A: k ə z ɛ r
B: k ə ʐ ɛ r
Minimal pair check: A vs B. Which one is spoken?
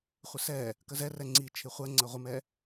A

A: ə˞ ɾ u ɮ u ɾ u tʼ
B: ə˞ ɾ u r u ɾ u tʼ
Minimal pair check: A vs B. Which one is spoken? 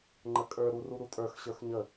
B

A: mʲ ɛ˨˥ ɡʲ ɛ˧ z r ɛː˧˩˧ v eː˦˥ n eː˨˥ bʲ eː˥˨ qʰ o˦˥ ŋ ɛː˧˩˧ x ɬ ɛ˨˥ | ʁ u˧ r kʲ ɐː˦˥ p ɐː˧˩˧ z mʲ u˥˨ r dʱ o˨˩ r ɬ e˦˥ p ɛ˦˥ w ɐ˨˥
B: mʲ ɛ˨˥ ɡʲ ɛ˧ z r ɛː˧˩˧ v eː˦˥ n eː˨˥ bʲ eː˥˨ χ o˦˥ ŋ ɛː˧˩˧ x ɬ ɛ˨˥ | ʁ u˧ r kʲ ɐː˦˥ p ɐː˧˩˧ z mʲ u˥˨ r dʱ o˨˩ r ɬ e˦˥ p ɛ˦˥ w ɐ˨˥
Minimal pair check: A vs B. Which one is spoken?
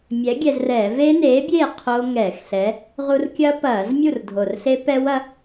A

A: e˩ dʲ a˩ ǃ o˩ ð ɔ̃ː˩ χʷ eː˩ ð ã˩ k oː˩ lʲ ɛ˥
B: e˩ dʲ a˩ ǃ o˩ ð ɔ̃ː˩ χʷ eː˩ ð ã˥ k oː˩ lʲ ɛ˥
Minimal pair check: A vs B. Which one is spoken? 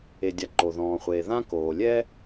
B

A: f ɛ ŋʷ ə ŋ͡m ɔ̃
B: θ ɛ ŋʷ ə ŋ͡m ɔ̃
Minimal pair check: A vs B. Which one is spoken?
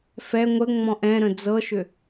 A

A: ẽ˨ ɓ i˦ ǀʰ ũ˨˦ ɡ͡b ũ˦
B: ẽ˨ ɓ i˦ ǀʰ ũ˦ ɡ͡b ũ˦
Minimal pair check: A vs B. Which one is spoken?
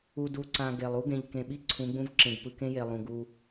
A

